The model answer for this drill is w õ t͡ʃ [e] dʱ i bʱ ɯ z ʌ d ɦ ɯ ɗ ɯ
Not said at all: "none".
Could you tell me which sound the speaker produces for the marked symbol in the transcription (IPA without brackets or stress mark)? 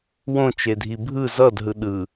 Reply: e